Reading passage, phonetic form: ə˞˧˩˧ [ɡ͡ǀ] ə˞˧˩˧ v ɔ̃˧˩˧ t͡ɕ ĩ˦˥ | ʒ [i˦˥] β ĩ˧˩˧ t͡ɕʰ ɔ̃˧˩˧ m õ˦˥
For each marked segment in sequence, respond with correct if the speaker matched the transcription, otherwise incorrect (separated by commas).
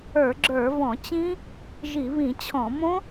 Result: incorrect, incorrect